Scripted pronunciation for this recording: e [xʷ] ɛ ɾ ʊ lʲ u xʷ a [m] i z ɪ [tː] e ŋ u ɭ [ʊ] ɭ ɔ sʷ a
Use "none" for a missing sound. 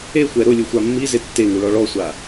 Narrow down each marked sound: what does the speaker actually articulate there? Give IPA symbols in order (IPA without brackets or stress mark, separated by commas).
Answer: xʷ, mː, tː, ɔ